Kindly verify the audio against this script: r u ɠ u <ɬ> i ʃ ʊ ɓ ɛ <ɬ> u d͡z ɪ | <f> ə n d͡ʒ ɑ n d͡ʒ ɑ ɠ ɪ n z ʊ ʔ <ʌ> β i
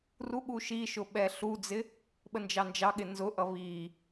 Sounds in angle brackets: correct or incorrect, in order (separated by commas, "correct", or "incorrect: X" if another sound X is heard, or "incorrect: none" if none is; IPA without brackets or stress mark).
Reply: incorrect: ʃ, correct, incorrect: ɓ, correct